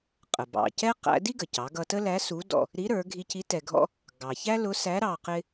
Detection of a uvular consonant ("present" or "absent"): present